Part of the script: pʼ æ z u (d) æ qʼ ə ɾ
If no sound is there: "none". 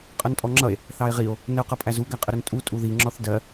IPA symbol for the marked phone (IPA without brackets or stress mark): ɡ